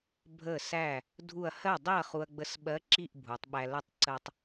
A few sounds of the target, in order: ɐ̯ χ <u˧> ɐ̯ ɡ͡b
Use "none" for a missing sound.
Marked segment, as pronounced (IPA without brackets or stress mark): u˧